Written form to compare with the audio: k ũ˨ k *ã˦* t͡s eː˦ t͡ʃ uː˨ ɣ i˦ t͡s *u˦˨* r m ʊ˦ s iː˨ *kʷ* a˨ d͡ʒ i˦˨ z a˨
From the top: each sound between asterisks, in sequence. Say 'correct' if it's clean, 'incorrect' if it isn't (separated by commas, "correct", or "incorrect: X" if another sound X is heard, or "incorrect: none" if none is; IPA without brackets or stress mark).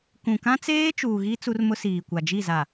correct, incorrect: u˦, correct